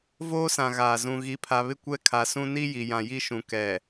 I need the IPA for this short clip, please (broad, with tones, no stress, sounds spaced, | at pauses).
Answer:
v oː˦ s ã˨ ɣ aː˨ z ũ˨ ɣ i˨ pʰ a˨ β ɪ˦ kʷ ɛ˦ kʰ a˨ s ũ˦ n i˦ j i˨ j ã˨ j i˦ ʃ ũ˨ k ɛ˨